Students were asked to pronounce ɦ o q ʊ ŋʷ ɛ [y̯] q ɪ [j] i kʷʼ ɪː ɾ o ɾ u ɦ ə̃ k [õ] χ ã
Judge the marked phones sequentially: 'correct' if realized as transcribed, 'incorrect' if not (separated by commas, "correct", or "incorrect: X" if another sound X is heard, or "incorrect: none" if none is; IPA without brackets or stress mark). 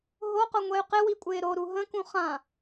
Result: correct, incorrect: w, incorrect: ũ